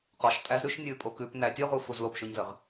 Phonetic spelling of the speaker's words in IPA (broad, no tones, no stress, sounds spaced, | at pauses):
q ɔ ʃ tʼ æ z ɾ ʉ ʃ nʲ ʉ pʼ o k ʉ p n æ tʲ o ʁ u f u z l o p ʃ ʉ ɲ z ə ʁ